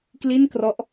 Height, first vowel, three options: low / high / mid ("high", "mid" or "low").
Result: high